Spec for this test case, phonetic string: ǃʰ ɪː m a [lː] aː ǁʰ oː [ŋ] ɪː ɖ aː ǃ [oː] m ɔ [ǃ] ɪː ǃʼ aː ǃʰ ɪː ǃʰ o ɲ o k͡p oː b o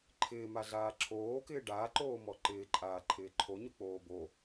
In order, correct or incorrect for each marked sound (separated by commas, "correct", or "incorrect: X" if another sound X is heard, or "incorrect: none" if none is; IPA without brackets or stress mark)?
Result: incorrect: ɮ, incorrect: k, correct, correct